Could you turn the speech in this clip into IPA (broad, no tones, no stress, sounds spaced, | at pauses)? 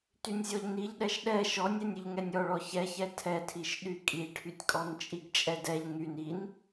t y nʲ zʲ ɔ ʎ n i ʎ ɗ ɛ ʃ ɗ ɛ ʃ ɔ nʲ ɛ nʲ y ʎ ŋ ɛ nʲ ɔ ɭ ɔ ç ɛ ç ɛ tʰ ɛ tʰ i ʃ ɗ y kʼ i ʈʰ y tʲ kʼ ɔ n t͡ʃʼ i ɡ t͡ʃʼ ɛ d ɛ ʎ ŋ y n i n